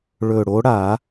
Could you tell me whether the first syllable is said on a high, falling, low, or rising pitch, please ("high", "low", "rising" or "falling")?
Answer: low